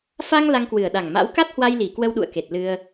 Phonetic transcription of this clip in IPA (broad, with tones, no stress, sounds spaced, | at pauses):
f a˧ ŋ l a˧ ŋ k w ɨ˨˩ ə̯ ɗ a˨˩ ŋ m a̰˧˥ w k a˦˥ t̚ h w a˧ j l i˨˩ k w ə˧ w ɗ ṵ˧˨ ə̯ k e˨˩ t̚ l ɨ˧ ə̯